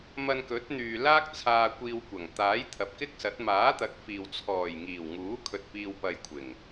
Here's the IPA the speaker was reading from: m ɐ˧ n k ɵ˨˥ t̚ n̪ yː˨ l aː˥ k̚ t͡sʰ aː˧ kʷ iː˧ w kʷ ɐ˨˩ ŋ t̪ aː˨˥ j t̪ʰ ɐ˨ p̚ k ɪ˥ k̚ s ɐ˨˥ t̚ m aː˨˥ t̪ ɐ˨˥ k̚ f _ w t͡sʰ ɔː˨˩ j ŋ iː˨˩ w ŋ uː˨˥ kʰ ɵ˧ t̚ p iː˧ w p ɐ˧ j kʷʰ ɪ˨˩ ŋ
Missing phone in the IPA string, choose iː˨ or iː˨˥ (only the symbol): iː˨